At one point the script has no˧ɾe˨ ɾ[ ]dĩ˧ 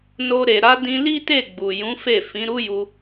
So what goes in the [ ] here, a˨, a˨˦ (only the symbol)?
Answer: a˨˦